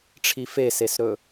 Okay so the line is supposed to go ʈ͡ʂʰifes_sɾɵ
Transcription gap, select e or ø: e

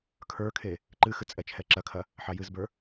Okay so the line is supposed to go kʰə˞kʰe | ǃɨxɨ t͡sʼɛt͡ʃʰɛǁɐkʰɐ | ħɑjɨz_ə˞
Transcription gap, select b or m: b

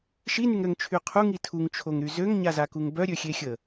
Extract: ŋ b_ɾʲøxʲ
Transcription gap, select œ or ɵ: œ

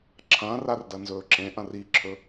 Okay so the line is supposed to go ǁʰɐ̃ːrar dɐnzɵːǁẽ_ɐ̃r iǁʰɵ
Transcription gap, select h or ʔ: ʔ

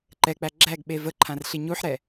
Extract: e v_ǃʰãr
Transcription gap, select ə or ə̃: ə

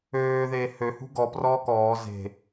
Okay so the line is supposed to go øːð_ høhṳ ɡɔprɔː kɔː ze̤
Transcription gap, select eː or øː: eː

